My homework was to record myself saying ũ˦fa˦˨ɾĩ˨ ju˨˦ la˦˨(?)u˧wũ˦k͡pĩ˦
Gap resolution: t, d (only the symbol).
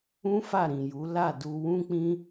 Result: d